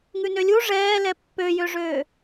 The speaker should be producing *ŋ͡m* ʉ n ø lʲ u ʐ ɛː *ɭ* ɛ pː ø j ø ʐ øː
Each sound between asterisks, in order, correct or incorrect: incorrect, incorrect

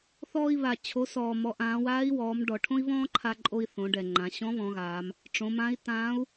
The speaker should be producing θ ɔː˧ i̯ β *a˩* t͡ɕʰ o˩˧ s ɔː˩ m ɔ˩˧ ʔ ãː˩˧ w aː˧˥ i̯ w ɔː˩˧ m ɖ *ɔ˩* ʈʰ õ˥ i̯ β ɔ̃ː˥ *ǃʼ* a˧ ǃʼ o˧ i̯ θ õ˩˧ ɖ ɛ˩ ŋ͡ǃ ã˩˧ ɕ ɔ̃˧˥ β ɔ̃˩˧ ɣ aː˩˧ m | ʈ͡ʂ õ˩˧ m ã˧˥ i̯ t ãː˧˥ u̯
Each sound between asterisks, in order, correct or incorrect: correct, correct, incorrect

